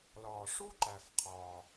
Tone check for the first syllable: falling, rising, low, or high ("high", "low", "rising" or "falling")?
low